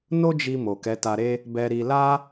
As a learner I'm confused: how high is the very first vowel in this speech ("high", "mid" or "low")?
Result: mid